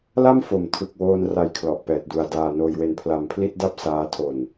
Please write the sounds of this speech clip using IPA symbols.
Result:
l a˥˩ m f o˩˦ m tʰ ɯ˨˩ k̚ w oː˧ n r a˧ j kʰ l ɔ˨˩ ʔ p ɛː˨˩ t̚ d u˧ a̯ d aː˧ n oː˧ j w e˧ n pʰ l a˧ m pʰ l i˥˩ t̚ d a˥˩ p̚ s aː˦˥ tʰ o˧ n

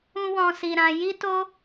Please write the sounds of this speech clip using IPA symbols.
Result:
ũ˦ w ɔ̃˧ s i˧ ɾ ã˧ j i˦ t o˦

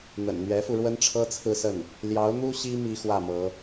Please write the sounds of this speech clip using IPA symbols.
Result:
n̪ ə̰˨˩ n n̪ ɥ ɛ˧˥ f u˧ ɻ w ə˥ n ʈ͡ʂʰ ɤ˥ t͡sʰ ɹ̩˥˧ s ə˥˩ n | l j ɑ˧˥ ʊ̯ n̪ u˥ ɕ i˥ m i˥ x w ä˥˩ m ɤ˧˥

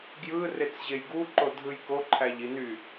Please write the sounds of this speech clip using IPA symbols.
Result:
ɡ j ɯ r e t͡s ʑ e j ɡ u ǃ o dʱ ɯ j k o ǃʰ æ ʎ i n y

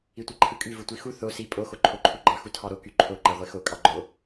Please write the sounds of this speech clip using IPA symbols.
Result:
i tʷ e ǃʰ ɯ kʼ y v ɯ tʷ i x u θ o s i pʼ o x o ǃʰ o ǃʰ u ɡ͡ǃ ɑ x u tʰ ɑ ɾ o k y ǃʰ o ǃ æ ʁʷ e x o kʼ ɑ ɡ͡ǃ o

